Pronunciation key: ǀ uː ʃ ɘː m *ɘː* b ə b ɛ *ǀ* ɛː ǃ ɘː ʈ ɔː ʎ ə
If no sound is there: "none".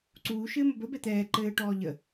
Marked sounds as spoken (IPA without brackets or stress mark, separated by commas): ɘ, t̪